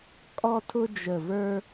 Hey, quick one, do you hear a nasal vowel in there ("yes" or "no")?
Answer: no